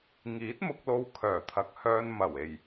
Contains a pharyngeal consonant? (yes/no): no